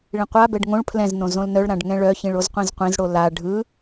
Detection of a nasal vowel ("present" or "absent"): present